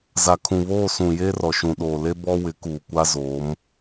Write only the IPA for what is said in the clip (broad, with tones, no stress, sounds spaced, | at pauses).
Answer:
z a˨ kʰ ũ˨ β oː˦˨ s ũ˨ j eː˦ r ɔ˨ ʃ ũ˨ ɗ oː˨ l e˦ b ɔ˦ w ɪ˨˦ k uː˨ kʷ a˦ z oː˨˦ m